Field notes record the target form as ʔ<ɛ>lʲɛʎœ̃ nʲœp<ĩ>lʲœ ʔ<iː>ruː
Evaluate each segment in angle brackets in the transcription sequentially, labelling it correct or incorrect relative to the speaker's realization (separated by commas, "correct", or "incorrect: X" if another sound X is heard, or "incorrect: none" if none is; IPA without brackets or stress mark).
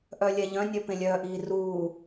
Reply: incorrect: œ, incorrect: ẽ, correct